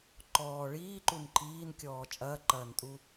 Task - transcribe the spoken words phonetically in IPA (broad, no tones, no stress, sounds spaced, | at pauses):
ǃ ɔː ɭ iː ǃ u n ǃʰ iː n kʲ ɔː t͡ʃʼ ɐː ǃ ɐː n tʼ u